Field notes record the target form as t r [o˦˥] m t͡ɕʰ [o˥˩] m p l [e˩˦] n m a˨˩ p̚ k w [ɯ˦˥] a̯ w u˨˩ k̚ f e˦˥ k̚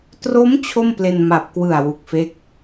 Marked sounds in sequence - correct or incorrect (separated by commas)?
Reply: correct, correct, incorrect, incorrect